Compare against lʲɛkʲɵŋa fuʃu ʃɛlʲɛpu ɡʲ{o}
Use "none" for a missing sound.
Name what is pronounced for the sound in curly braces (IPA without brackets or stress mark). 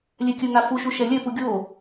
o